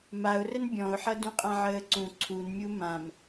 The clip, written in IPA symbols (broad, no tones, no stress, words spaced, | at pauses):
maʊ̯rən bʲɔ̃ʊ̯ħʌ dũqʼãʕəːǀũ ǀʰunmʲu mãm